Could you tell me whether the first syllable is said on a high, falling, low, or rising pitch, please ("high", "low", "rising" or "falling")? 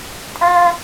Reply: high